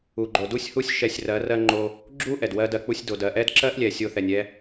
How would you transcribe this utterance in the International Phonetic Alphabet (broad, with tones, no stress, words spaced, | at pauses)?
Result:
u˨ɡ͡ǃo˨du˦sʲhu˦sʲ ʃɛ˧sʲrɜ˨˦ rɜ˧ŋ͡ǃo˧ | ɡ͡ǁu˦ ʔɛ˨dwɜ˦dɜ˧k͡pu˦sʲ do˨dɜ˨ʔɛ˦d ǁɜ˦ʔlʲɛ˨ sʲo˧θɛ˨nʲɛ˦